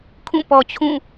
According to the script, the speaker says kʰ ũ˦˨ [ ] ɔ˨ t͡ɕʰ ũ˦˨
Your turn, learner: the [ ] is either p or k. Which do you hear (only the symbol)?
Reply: p